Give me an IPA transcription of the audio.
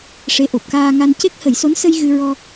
ʂe˧˥ʔo˨˩p̚kaː˧ŋa˧n ce˦˥k̚hə˨˩˦jso˧˥nsə˧j ɣɨ˧ɹɔ˧

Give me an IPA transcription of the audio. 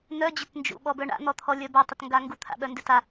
n̪œd͡ʑʏt nd͡ʒṵɓɔbœ ɳa̰n̪ɔt̪ʰɔlʲœ batˤʏtŋɡa ŋɡut̪ʰa̰ɓœndʏ ta

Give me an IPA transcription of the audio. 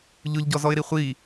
ʎʊʎɟɔzɔɪ̯ɾi χʷi

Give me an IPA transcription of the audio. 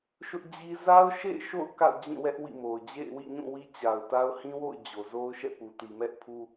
ʃʊ˦ʔd͡ʑi˦ za˦ʊ̯ʃḛ˦˨ɪ̯ʃo̰˦˨ʊ̯ ka̰˦˨ʊ̯d͡ʑĩ˦˨wɛ˦ʔ wḭ˦˨mo˨ʊ̯ d͡ʑḛ˦˨ɪ̯wḭ˦˨ɲũ˦˨ wi˦t͡ɕa˨ʊ̯ta˦ʊ̯ hĩ˦wo̰˦˨ʊ̯ d͡ʑo˨ zo˦ʊ̯ʃɛ̰˦˨pu˨ ti˨mɛ˦ʔ pʰu˦

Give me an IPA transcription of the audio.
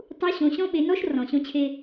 tˤu˧˥ɕõ˩˧ɕɔ̃˥ɓe˩˧ nɔ˥ʃ rɔ̃˩ɕõ˧t͡ɕʰe˧

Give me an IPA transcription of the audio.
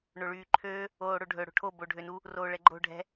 ɳoɭyːǃʰøː | oːɽoɖʱɵ ɽo̤ʈʰo boɖʱønu | roːɭɛɡ͡ǃo̤ ɖʱɛ̤

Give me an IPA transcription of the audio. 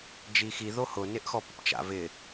d͡ʒixi ðohʊ nɪʔxɔpʊpt͡ʃa̰ vɪ

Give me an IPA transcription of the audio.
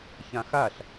çãxaɬ

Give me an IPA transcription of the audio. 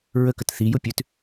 ɹəkət θijʊ pʲʉt

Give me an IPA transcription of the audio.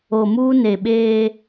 o˨muː˦ ne˨ɓeː˦

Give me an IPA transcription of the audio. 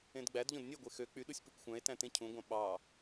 ẽdɡ͡bædʎõd nʲeɡʷe xø k͡pyɗusʲ pøkʷxʷæ̃e̯tæ̃ tẽcʰũɡʷɑ̃ ɓɑ

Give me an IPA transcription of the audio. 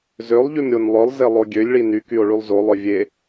zølˠʎym ɾʲonlˠœlˠze lˠoɡʲølʲɭi nykyo̯ ɭylˠzolˠœ vʲe

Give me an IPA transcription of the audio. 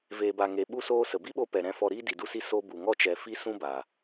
veː˨ba˨ŋe˨ ɓu˦soː˦sə˨ bi˦ɓo˧pɛ˨ ɾɛ̃˧fɔ˧ɾiː˦ di˨du˧si˧ so˦ bu˨ŋɔ˧t͡ʃɛ˨ fi˦sũ˦ba˨

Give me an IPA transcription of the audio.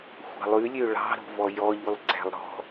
xʷɑ̤lˠʉlʲø ɭɑ̤ɾo̤vɔ jɔʎʉlˠ ǀæ̤lˠɾɔ̤

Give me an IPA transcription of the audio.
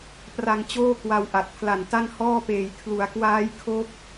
pra˧ŋt͡ɕoː˥˩kwa˧w ʔa˨˩t̚pʰla˨˩nta˥˩n hɔː˥˩peː˨˩j kʰlu˩˦a̯kwaː˦˥jkʰo˦˥k̚

